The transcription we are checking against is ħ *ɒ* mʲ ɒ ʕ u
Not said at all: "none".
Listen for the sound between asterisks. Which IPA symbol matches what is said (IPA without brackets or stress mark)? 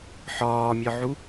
ɒː